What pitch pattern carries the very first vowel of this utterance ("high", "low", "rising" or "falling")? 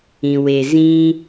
low